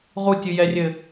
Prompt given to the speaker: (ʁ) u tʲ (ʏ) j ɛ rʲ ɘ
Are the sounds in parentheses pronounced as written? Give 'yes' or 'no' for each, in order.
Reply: yes, no

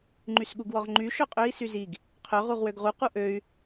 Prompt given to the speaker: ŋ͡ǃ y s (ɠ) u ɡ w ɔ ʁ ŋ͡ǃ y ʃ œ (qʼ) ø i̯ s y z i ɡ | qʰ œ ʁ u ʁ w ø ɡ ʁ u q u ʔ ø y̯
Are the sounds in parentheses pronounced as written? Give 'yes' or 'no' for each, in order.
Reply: yes, yes

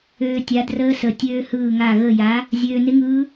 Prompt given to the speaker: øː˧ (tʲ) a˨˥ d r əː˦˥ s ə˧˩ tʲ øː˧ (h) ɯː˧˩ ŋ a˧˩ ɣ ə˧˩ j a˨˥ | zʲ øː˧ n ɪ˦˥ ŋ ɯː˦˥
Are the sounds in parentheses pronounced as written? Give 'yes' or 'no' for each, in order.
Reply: yes, yes

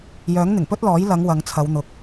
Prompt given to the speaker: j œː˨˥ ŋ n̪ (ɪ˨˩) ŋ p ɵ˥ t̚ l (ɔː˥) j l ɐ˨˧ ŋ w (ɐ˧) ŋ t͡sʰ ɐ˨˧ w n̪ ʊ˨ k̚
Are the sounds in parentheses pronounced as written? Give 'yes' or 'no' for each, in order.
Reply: yes, no, no

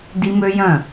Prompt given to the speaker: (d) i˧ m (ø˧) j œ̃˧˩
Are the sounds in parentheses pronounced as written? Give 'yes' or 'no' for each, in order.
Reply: yes, yes

